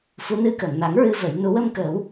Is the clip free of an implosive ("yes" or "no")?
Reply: yes